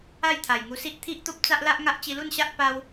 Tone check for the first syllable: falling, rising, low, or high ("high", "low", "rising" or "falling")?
falling